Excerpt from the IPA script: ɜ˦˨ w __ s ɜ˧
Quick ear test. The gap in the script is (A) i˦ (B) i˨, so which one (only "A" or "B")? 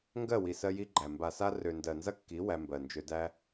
B